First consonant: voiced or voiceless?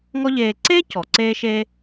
voiced